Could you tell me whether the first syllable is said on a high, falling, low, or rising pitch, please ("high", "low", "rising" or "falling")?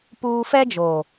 high